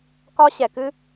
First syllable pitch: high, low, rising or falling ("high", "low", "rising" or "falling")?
high